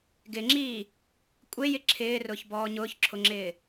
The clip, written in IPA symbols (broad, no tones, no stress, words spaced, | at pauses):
ɡɪŋ͡ǁiː | kʷʼejɪ ǁʰɪːrʊːçbɔː ɲʊːçǁʰʊŋ͡ǁɪː